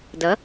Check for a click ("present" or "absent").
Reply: absent